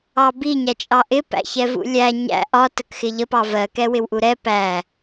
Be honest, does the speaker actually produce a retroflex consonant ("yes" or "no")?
no